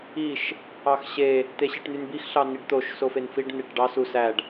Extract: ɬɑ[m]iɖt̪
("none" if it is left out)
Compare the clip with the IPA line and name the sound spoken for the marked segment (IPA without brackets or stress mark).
n